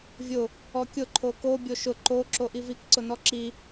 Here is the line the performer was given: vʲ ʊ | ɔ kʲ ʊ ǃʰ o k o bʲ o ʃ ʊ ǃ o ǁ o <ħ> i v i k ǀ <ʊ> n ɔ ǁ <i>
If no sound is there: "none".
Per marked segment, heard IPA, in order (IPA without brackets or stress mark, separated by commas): ʔ, ʊ, i